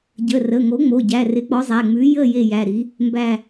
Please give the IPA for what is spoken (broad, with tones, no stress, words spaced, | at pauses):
ɟə˩˧˩rə˩˧˩ŋo˨˥ŋ͡mo˩˧˩ ɟæ˩˧˩rɪ˨˥ k͡pɔ˨˥zˤæ˩˧˩ŋ͡mʉ˨˥ jə˦˨ je˦˨jæ˩˧˩ɾi˨˥ | mbæ˦˨